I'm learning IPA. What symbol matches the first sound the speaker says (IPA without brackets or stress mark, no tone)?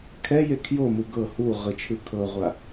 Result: kʰ